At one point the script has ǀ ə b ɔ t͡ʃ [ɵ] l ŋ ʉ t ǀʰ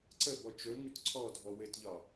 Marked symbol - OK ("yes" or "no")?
yes